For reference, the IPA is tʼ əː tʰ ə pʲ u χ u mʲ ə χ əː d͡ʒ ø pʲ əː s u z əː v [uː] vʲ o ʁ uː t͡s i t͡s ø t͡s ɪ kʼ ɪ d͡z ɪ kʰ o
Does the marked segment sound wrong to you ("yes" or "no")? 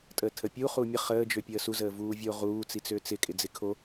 no